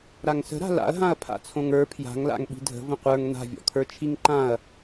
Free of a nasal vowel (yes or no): no